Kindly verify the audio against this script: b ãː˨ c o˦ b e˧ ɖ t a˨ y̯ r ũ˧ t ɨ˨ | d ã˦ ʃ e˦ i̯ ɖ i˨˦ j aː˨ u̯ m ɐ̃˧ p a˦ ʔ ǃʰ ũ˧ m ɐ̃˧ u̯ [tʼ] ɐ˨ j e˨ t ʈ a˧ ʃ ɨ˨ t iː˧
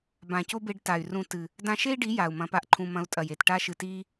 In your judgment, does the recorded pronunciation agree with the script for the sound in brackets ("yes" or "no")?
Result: yes